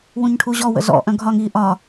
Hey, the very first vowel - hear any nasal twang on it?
yes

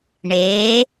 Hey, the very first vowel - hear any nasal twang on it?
no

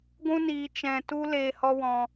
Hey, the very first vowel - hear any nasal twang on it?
yes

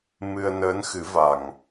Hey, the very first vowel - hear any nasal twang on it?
no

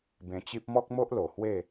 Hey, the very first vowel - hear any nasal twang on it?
yes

